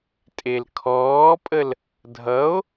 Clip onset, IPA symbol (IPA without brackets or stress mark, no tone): tʼ